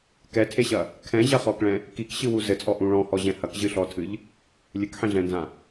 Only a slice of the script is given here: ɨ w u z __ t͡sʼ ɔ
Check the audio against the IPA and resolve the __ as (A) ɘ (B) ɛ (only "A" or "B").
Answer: A